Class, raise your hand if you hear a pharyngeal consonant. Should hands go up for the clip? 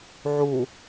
yes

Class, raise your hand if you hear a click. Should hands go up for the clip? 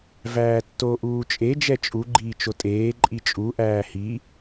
yes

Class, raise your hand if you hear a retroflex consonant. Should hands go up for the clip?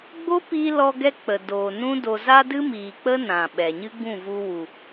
no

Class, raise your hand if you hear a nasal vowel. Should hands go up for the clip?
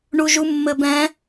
yes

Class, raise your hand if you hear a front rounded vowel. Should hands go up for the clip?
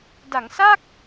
no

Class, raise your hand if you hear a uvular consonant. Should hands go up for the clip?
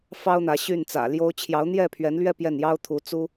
no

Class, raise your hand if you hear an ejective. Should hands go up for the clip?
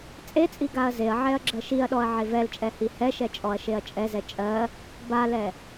yes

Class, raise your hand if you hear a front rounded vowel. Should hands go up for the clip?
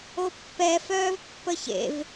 yes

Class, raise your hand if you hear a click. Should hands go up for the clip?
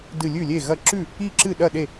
yes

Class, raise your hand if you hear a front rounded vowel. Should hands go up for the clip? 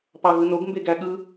no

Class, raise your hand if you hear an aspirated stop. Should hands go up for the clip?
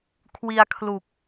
yes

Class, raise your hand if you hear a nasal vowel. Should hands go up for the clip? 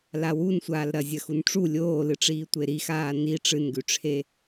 no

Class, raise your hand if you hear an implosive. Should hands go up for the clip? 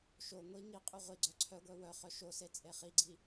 no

